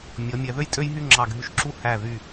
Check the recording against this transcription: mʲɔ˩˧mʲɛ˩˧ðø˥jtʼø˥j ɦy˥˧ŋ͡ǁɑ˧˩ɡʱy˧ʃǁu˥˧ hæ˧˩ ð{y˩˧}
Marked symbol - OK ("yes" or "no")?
no